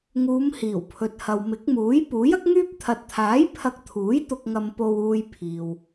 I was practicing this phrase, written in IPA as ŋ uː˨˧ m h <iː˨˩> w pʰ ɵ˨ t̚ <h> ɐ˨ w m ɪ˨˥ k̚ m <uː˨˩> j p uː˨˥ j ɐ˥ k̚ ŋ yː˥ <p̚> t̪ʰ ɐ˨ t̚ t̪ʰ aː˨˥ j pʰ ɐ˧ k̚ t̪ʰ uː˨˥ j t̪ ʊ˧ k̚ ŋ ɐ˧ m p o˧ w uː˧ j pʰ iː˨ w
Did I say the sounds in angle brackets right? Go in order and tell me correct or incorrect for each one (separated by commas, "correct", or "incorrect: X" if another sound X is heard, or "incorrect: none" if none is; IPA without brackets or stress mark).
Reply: correct, correct, incorrect: uː˨˥, correct